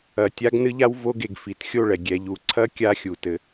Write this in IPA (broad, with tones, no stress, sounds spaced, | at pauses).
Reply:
ɐ˨ tʲ a˧ ɡ n ɨ˦ ʎ a˦ w v o˧ ɡ e˨ ɡ f i˨ t xʲ o˦˨ ɭ ɛ˨ ɡʲ ɛ˨ ʎ u˨ ǀʰ ɐ˦ kʲ a˦ xʲ u˨ t ɘ˧